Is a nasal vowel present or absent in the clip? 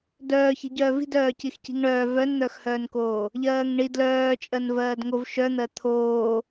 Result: absent